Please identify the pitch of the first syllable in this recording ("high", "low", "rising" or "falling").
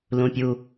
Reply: high